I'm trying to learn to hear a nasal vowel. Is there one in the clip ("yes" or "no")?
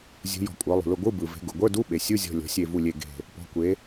no